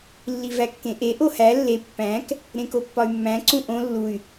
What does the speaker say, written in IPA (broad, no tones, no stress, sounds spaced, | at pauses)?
lː i v æ kː ẽ ʔ e ʔ o h æ lː e pː æ̃ k | ɾ ẽ k o pː ɒ y̯ mː æ̃ ǀ ũ ʔ õ lː u y̯